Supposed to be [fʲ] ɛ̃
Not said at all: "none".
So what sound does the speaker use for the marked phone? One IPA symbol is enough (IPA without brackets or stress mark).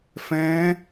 f